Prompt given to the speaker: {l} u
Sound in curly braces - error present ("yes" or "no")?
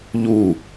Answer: yes